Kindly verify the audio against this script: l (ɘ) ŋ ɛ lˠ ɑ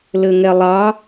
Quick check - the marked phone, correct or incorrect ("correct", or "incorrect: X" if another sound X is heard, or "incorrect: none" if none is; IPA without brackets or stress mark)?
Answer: correct